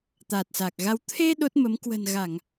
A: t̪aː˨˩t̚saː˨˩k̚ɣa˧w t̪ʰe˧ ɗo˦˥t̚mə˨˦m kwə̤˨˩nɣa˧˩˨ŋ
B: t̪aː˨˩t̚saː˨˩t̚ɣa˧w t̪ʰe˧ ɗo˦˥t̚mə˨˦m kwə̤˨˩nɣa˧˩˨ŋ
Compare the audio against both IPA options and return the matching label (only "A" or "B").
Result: A